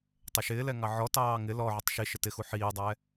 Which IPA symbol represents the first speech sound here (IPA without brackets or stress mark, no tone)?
tˤ